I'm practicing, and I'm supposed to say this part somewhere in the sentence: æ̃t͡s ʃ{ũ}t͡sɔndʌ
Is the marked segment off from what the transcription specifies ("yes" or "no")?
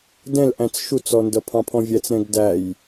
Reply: yes